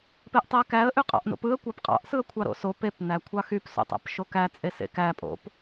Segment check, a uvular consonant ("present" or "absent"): present